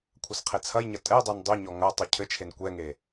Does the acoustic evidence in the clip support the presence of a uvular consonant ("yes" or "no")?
yes